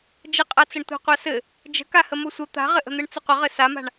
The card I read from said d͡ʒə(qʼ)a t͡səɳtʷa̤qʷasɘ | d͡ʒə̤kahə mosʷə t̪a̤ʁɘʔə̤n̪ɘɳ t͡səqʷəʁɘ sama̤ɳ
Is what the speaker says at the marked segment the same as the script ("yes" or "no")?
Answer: yes